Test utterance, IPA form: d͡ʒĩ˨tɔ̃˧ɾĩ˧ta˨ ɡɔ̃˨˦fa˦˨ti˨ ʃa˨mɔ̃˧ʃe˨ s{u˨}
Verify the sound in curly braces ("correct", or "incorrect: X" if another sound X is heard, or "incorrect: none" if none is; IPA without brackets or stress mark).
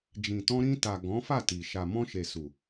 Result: correct